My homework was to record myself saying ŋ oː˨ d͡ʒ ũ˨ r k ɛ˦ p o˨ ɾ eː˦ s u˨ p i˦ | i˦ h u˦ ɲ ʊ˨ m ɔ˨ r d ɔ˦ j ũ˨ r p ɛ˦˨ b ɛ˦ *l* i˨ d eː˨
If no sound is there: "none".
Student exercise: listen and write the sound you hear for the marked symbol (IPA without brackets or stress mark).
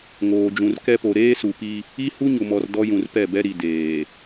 ɾ